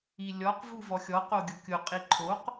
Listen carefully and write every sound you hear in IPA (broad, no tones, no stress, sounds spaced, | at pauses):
i lʲ ɔ q v u v ɔ xʲ ɔ q o ɡʲ ʊ kʲ ʊ qʼ i ǃʰ o q